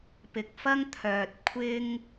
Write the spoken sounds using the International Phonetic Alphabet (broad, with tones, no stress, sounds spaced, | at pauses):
p ɪ˨ k̚ f ɐ˥ ŋ t̪ʰ œː˨ t̚ kʷʰ ɪ˥ ŋ